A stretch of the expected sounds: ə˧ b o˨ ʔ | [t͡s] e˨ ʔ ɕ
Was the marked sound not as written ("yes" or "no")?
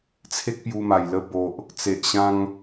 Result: no